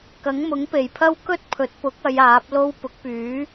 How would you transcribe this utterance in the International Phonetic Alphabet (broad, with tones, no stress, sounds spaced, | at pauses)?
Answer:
k ɐ˨˥ ŋ m ʊ˨˥ ŋ p e˨ j pʰ ɐ˥ w k ɵ˥ t̚ pʰ ɵ˨˥ t̚ p ʊ˨˥ k̚ ɐ˨˧ j aː˨˥ p̚ l o˥ w p ʊ˨˥ k̚ p yː˨˥